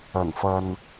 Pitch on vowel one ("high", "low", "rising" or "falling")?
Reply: low